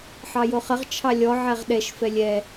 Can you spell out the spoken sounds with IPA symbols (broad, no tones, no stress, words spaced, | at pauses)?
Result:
ħɑjoχəʁ t͡ʃʰɑlʲɔ ʕɛʁɗɛʃ fɛlʲɛ